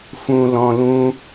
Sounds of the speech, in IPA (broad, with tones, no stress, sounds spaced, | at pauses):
f ũ˧ l ɔ̃˧ l ũ˦